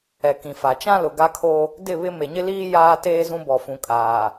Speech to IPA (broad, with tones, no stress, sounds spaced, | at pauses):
ɛ˨ k ĩ˨ f a˨ t͡ʃ ã˦ l ʊ˨ ɡ a˦ kʰ o˦ | d ɪ˦˨ β ɪ˦ m e˨ ɲ ɪ˦ l iː˦ j aː˦ t eː˦ z ũ˦ b ɔ˨ f ũ˨ kʼ aː˨